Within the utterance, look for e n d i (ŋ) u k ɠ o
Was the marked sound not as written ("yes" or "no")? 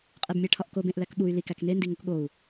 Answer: no